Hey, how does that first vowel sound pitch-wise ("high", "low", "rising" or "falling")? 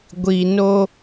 low